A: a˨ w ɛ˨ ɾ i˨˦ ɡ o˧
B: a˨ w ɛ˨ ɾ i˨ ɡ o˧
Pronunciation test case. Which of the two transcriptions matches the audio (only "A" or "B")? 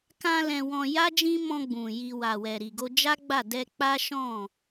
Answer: B